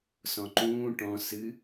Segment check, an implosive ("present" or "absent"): absent